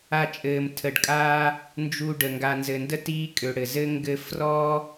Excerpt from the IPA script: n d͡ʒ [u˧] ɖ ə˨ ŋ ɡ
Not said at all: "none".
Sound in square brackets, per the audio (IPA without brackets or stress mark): u˧